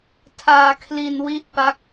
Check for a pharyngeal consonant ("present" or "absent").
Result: absent